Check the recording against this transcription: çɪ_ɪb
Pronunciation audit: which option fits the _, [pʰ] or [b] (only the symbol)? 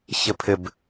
pʰ